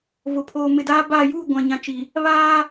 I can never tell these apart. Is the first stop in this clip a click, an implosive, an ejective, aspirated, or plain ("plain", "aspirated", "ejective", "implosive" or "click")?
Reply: aspirated